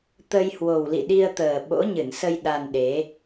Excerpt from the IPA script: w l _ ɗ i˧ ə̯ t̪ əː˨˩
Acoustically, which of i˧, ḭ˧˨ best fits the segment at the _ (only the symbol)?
ḭ˧˨